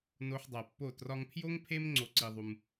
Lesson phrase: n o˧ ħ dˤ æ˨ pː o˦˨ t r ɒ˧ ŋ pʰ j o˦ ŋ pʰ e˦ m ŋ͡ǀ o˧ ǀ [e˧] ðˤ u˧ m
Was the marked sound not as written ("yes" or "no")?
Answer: yes